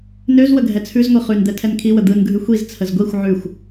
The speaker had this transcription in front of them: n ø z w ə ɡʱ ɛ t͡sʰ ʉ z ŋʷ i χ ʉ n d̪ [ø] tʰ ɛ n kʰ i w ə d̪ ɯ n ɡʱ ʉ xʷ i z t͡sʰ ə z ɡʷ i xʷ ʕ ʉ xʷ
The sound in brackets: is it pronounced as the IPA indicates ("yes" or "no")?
no